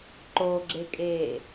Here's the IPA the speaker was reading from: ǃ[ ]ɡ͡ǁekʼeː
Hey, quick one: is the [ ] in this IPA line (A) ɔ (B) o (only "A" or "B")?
B